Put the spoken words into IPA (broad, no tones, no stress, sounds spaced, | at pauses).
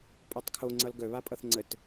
pʼ o tˤ kʰ o ŋ͡ǀ ʌ l ɡ œ β a pʼ ʌ θ ŋ͡ǀ ə t